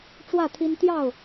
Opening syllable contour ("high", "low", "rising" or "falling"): falling